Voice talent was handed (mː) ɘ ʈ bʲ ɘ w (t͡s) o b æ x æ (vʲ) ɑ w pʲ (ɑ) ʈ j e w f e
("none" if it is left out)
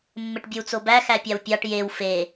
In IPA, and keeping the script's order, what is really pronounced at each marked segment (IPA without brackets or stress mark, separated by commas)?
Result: mː, t͡s, pʲ, ɑ